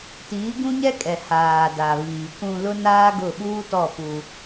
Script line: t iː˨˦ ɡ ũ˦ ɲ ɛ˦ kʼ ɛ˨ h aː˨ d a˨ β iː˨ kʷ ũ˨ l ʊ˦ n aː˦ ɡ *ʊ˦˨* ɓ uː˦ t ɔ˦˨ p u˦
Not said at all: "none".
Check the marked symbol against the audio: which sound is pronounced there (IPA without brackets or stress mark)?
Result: ʊ˦˨